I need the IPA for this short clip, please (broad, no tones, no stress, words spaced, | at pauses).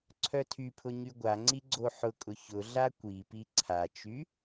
ǀʰœtʰypʰʊ ɲyɡʷaŋ͡ǀi ɡ͡ǀoħʊkʼʊ çʊ ɮakʷipi ǀʰat͡ʃy